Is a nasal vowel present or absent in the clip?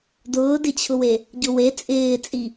absent